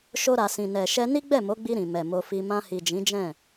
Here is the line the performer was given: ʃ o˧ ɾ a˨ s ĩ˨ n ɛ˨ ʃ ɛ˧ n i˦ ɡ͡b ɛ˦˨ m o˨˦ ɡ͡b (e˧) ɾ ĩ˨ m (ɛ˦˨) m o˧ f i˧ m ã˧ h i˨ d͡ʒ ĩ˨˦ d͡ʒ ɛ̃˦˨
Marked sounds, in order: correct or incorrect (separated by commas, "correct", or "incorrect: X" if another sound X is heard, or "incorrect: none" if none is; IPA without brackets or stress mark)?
incorrect: i˧, incorrect: ɛ˨